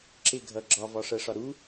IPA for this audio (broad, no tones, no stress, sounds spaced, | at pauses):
ǁ ɪ ɡʱ ʌ ɡ͡ǁ ɒ v ɒ ʂ ɜ ʂ ɒ ɾ u